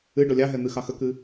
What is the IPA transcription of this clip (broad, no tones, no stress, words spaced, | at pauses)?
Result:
ɨ ɖɔlʲɑɦɛ n̪ɨxɑxəkɨ